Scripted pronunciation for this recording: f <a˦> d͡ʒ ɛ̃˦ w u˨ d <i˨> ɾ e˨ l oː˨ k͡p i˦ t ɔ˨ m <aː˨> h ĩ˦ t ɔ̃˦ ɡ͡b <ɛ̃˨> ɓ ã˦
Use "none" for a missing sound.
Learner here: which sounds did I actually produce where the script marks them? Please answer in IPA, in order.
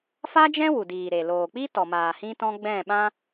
a˦, iː˨, aː˨, ɛ̃˦˨

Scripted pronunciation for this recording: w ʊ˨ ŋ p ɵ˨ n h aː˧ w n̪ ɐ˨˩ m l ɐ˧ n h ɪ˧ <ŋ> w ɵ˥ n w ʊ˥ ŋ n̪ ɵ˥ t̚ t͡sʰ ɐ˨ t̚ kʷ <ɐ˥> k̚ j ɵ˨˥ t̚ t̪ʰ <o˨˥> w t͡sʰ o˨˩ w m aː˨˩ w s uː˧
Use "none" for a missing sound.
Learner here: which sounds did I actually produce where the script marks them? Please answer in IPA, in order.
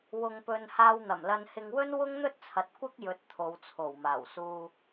ŋ, ɐ˥, o˨˧

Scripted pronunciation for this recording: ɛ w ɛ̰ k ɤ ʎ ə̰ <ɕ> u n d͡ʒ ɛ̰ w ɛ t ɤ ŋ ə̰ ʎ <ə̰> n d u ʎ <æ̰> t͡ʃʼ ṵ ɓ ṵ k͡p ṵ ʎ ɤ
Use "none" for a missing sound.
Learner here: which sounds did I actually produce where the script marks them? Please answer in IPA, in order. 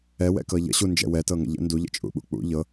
ɕ, ə̰, ə̰

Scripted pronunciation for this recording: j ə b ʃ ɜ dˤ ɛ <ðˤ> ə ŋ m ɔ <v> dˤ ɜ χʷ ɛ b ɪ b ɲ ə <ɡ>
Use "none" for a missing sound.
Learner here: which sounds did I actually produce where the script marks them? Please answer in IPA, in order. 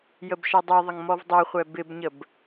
ðˤ, v, b

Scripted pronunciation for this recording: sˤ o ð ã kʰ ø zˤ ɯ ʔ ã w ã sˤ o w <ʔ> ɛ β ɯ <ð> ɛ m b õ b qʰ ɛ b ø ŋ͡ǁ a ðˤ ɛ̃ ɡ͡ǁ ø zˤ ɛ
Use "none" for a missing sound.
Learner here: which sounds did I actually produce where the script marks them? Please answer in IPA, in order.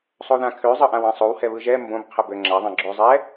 h, ʒ

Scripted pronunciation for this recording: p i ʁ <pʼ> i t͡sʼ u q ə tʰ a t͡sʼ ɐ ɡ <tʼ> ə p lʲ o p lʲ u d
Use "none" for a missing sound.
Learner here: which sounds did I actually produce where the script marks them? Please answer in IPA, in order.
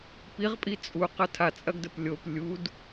pʼ, d

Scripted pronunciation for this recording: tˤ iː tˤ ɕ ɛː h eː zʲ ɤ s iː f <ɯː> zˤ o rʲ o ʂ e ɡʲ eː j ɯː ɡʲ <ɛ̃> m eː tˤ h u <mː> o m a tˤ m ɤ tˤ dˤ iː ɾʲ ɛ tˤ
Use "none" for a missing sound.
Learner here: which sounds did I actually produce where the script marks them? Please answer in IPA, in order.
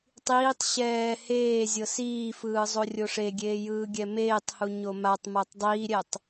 ɯː, ɛ, ɲ

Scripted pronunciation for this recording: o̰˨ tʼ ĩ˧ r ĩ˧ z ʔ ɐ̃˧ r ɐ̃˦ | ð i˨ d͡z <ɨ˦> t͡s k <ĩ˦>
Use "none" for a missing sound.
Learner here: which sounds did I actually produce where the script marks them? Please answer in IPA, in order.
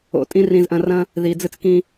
ɨ˦, ĩ˦

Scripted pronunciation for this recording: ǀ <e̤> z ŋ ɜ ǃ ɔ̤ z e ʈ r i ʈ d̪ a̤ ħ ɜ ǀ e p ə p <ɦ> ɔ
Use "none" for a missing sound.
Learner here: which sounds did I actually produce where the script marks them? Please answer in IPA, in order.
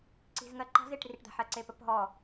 i̤, ɦ

